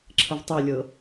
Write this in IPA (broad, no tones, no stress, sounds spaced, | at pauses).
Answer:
ǁʰ ə v tˤ o lʲ ɤ